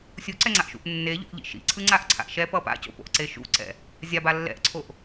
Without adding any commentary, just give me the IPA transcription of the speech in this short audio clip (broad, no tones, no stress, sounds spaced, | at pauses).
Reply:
sʲ u ǀ ɛ ŋ͡ǀ a ʔ ʃ ṵ ʔ nː e ʎ o̰ ʔ ʎ ḭ ʃ ḭ ǀʰ ɯ ŋ͡ǀ a ʔ ǀʰ a̰ ʔ ʃ ɛ p ʌ p a̰ c o̰ p o̰ ʔ ǀ e ʃ ṵ ǀ ɛ̰ | zʲ a b a lː ɛ̰ ʔ ǀʰ o ʔ